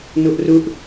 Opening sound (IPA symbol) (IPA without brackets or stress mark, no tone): n